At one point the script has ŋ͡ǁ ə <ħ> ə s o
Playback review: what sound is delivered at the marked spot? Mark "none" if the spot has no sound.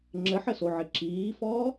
ħ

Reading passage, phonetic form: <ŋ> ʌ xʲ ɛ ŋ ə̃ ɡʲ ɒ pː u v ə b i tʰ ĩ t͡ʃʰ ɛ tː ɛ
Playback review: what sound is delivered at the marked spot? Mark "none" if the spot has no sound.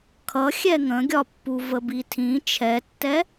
kʰ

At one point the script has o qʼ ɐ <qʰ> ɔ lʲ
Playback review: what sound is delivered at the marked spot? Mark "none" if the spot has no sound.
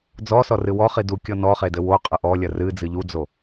ʔ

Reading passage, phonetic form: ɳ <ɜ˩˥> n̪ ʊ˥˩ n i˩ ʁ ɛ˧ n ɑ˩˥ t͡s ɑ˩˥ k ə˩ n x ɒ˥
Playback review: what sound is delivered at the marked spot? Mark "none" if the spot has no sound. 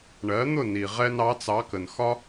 ɜ˩˥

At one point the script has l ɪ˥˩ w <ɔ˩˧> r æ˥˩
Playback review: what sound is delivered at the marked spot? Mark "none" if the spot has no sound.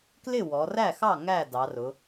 ɔ˩˧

